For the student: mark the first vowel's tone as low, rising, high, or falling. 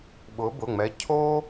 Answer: rising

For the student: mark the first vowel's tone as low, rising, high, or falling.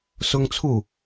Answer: high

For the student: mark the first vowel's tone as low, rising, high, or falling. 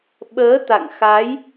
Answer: rising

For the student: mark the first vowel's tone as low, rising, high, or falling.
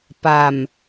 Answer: low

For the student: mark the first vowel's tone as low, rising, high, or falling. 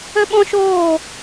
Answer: high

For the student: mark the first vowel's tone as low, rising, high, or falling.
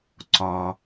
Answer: low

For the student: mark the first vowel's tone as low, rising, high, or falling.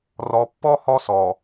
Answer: low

